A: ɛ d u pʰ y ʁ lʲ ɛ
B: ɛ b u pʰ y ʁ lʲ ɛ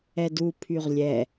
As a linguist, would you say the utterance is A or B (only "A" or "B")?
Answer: A